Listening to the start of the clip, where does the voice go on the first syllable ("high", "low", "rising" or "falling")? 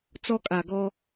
high